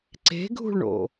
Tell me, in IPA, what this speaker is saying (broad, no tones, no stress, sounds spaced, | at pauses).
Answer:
ǀ e̤ ɡʱ ṳ ɭ ɳ o̰